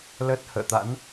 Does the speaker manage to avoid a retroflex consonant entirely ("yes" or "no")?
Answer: yes